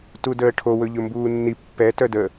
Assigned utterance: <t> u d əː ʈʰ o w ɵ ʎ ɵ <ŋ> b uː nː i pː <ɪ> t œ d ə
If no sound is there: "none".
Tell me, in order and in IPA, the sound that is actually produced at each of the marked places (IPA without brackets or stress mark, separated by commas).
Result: t, m, ɛ